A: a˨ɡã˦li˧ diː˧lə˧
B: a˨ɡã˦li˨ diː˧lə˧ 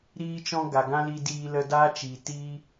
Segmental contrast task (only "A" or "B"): A